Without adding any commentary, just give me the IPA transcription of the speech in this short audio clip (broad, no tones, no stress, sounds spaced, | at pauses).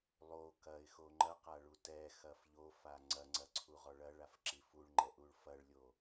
lˠ o k ɐ ɪ̯ x o ŋ͡ǃ ɐ q a ɭ u t ɛ x ɐ f ʎ o f a ŋ͡ǀ ɐ ŋ͡ǀ ɐ ǀʰ u ʁ ɔ ɭ ɐ ɭ a f ǁ i f u ɭ ŋ͡ǃ ɛ ʔ u ɭ f ɐ ɭ lʲ o